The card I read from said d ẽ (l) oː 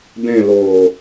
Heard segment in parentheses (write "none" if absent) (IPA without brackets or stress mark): l